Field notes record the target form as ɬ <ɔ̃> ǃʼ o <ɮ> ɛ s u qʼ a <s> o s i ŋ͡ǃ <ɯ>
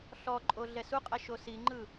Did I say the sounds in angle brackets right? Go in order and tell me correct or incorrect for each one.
incorrect: ɔ, correct, incorrect: ʃ, correct

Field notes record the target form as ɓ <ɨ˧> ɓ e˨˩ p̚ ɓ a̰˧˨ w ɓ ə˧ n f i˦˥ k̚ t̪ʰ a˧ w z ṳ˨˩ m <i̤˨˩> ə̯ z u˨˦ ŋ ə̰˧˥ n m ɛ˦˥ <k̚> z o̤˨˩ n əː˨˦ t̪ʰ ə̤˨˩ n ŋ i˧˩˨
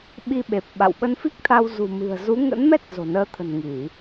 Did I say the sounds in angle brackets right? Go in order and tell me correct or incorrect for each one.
incorrect: i˧, incorrect: ɨ̤˨˩, incorrect: t̚

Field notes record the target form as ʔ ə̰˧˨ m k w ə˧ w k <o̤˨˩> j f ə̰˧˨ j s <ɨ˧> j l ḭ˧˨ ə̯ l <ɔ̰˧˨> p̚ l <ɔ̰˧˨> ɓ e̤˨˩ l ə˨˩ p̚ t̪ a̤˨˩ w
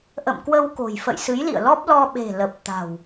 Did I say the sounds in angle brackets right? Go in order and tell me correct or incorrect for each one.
correct, incorrect: ɨ˨˦, incorrect: ɔ˦˥, incorrect: ɔ˧

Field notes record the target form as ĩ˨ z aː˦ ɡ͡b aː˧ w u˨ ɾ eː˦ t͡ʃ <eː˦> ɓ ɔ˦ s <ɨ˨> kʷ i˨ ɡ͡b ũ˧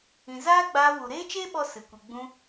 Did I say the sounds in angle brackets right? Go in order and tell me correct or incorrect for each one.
correct, correct

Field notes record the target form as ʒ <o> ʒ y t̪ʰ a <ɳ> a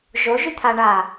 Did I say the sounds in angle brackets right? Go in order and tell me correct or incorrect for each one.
correct, correct

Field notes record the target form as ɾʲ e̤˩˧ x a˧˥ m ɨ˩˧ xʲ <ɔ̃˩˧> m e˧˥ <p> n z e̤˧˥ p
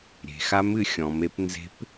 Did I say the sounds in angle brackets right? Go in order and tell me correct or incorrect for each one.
correct, correct

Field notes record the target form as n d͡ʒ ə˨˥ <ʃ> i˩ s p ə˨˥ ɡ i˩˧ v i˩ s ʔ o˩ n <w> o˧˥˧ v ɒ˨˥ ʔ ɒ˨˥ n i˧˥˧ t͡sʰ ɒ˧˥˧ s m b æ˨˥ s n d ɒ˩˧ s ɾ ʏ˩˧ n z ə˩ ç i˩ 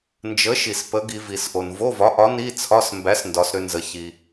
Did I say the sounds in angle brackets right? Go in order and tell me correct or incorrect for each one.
correct, incorrect: v

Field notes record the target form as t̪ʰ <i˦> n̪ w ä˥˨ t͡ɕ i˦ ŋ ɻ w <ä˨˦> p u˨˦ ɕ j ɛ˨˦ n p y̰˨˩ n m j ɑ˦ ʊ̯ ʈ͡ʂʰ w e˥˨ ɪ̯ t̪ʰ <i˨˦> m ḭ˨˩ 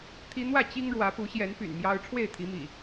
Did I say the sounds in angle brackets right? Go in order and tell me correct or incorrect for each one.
correct, correct, correct

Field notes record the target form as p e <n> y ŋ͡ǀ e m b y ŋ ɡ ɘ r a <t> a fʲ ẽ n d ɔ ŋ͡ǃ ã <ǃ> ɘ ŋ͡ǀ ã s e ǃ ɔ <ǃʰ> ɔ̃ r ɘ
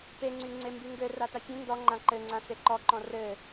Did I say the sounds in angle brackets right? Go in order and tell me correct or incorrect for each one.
incorrect: ŋ͡ǀ, correct, correct, incorrect: ǃ

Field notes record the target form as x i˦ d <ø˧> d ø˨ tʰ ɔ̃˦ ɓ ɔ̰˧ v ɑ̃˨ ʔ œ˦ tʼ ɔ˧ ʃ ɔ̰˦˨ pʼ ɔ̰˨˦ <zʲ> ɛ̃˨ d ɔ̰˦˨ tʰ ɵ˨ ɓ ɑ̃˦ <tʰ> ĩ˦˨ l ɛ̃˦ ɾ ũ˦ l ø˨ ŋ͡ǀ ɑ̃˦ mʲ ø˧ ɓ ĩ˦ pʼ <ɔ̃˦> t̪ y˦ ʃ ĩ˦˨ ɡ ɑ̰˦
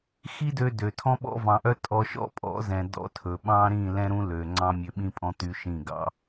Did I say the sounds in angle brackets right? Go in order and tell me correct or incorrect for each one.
correct, incorrect: z, incorrect: ɾ, correct

